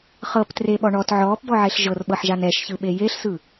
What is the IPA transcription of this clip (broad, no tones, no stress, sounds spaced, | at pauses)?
χ ɤ p t r e ɓ ɔ ɳ ɔ t ʕ ɔː p b ɔ ʕ e ɬ ʒ ɤ r ɓ ɤ ħ ʒ a n ɛ ʃ ç ɯ ɓ e j e ɬ s ɯ